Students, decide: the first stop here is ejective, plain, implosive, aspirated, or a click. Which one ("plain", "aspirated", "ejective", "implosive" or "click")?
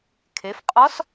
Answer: aspirated